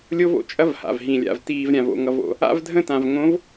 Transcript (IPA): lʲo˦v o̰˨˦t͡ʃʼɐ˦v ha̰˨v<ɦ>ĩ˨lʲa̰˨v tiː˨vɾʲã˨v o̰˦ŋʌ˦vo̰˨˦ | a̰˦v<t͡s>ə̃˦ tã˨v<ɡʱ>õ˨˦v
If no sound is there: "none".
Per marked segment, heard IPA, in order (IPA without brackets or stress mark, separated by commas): ɦ, dʱ, ŋ